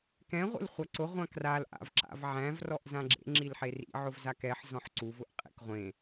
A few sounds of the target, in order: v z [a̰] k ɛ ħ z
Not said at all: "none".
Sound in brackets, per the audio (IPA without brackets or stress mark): a